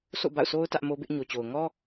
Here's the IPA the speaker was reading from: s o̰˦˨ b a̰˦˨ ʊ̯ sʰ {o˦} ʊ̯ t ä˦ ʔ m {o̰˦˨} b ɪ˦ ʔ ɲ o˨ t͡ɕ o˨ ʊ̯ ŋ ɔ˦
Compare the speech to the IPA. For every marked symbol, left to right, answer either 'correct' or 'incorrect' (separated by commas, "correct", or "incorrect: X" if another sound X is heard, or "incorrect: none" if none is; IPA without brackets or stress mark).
correct, incorrect: o˦